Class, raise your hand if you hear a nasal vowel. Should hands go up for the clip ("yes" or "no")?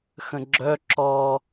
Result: yes